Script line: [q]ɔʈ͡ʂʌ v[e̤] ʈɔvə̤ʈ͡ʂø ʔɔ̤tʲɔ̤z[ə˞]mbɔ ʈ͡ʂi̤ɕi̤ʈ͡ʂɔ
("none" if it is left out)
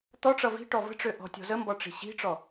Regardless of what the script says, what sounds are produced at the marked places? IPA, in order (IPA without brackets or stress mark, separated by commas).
t̪, i̤, ə